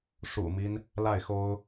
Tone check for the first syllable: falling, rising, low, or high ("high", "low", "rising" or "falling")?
low